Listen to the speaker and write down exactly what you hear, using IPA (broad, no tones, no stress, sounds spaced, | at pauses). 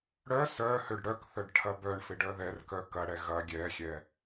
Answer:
ɽ œ s œ h ø ɖ ɽ œ k θ œ ɖ ʈʰ ɐ b œ ɳ f ɪ ɖ œ ð ɛ r k œ k ɐ ɽ ɛ ɣ ɐ ɡʲ ɛ xʲ ɛ